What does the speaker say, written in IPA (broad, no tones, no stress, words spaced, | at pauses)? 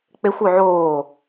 k͡pexʷø ʕoː